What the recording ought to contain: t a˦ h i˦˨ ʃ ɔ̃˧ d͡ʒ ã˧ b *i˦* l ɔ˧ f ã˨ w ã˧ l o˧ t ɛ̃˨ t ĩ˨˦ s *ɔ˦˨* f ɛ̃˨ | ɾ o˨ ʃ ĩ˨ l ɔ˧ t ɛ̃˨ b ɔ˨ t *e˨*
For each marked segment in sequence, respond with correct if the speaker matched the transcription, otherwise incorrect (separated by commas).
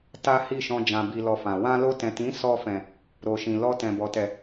incorrect, incorrect, incorrect